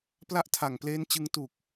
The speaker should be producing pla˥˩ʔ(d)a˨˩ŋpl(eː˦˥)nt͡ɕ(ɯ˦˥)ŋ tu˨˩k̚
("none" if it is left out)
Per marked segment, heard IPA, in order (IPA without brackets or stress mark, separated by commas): tʰ, eː˦˥, ɯ˧